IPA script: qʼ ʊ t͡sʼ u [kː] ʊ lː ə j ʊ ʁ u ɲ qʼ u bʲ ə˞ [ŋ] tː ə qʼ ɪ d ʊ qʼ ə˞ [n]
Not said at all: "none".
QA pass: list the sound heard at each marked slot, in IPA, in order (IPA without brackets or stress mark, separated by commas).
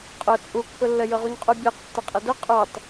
kː, q, tˤ